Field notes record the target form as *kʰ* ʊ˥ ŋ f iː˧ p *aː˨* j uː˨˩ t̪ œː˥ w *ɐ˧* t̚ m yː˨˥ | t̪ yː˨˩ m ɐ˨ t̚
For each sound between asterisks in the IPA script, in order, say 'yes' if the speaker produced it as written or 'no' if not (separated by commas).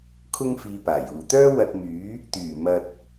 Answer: yes, no, yes